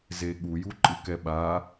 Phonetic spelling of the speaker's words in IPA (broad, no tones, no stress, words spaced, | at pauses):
zeɠuju ǃʼɯkɛɓa